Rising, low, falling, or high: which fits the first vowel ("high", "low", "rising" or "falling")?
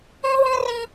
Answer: high